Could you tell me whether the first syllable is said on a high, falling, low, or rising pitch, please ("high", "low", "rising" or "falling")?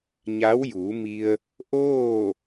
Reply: rising